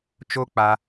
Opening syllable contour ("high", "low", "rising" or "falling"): high